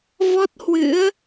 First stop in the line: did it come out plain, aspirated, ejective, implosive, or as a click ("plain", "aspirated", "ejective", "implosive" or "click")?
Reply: plain